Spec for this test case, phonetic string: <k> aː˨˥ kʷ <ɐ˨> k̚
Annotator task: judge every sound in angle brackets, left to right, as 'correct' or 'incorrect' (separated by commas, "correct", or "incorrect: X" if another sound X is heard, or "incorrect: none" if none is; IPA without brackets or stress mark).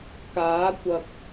correct, correct